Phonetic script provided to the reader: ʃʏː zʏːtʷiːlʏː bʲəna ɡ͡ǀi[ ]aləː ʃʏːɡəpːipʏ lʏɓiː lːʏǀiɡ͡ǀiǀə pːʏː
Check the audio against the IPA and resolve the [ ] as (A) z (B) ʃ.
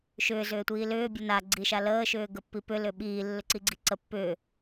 B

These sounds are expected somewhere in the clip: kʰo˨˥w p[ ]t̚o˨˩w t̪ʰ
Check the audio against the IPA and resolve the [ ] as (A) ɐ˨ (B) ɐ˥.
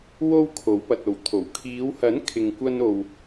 A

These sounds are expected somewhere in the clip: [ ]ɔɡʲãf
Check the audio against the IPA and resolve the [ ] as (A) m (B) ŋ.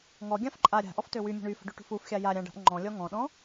B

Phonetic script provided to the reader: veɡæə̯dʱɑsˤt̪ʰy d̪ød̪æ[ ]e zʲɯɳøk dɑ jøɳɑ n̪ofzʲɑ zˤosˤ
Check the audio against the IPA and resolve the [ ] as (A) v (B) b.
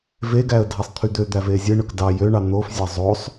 A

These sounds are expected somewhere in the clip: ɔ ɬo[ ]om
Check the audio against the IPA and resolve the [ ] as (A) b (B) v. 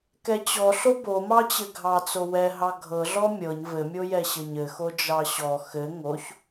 A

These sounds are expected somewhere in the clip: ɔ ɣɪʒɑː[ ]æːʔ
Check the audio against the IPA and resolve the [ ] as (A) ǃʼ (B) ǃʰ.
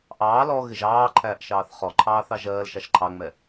B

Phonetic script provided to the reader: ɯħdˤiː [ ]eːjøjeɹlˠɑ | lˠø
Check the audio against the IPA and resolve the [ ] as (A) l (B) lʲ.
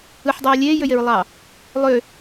B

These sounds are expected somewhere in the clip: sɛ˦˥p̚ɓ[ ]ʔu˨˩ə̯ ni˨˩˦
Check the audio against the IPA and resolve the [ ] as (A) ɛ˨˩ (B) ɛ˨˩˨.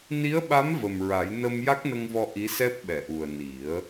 B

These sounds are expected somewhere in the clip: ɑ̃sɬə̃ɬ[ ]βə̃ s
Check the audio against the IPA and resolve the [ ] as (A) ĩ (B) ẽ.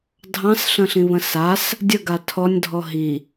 A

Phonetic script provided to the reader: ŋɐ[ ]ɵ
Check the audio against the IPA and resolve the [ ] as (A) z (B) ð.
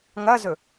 A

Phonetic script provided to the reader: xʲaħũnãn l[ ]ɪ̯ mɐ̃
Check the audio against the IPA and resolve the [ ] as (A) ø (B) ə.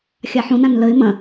B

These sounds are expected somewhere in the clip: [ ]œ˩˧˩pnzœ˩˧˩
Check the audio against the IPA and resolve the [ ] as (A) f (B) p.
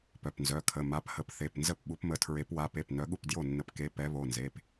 B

